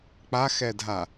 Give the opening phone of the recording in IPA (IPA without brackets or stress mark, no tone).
k͡p